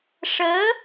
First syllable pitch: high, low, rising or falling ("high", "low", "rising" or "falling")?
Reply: rising